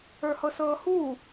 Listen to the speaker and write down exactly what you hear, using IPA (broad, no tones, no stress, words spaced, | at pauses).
ə˞hɤsɤːhuː